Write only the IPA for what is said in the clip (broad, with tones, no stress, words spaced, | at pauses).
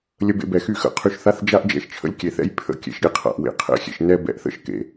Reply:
lʲə˧bḛ˧bɛ˨xy˧ xə̰˨˦qʰy˧ʃθa˦θ d͡ʒa˦ʔd͡ʒɛ̰˦ʃ t͡ʃʰə̰˦lʲkʲe˨θɛ̰˦j pʰə̰˦ kʲḛ˧ʃɾʲe˨qʰa̰˨ʔ wḛ˨qʰɛ̰˧xʲḛ˨ʃ nɛ˦ bɛ̰˧ʔθə̰˦ʃ kḛ˨